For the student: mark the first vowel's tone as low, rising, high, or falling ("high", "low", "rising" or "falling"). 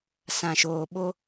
low